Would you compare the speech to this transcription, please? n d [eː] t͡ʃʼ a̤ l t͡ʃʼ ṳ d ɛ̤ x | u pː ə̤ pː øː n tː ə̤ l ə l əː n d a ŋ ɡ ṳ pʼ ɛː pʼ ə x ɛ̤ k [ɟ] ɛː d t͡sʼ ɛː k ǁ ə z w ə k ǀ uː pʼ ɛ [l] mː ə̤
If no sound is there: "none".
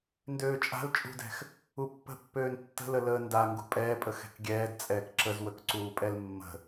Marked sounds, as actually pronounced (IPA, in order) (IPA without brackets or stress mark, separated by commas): øː, ɡʲ, l